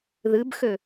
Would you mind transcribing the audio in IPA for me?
ð ɨ b x ø

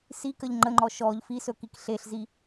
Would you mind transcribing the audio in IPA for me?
s i k ə ʎ ŋ͡ǃ ə ŋ͡ǃ ɔ ʃ ɔ ʎ f i s ɵ k i k ɬ e ɬ z i

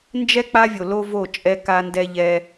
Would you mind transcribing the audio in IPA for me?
n d͡ʒ ɛ˦ k͡p a˦ vʲ o˨ l o˦ v o˦˨ t͡ʃʼ ɛ˦ k a˦ n d ɛ˦ ʎ ɛ˦

